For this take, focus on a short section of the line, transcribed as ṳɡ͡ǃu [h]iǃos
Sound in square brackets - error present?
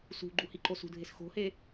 no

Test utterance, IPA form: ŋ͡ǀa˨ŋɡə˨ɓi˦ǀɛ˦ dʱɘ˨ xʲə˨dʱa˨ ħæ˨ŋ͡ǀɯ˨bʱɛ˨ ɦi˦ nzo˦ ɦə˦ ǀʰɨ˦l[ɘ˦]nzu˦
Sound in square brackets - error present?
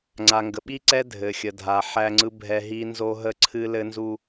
no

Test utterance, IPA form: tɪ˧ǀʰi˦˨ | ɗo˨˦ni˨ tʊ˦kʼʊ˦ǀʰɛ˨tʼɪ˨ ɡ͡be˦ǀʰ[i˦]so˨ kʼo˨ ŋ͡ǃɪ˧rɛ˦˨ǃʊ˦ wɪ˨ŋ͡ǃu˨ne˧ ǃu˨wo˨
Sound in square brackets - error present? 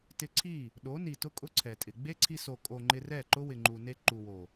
yes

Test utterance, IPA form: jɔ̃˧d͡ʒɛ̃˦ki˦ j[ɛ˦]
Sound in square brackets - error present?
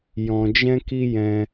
yes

